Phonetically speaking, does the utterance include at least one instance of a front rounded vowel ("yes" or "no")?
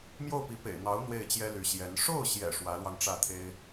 yes